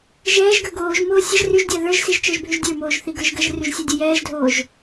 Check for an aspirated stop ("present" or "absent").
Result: absent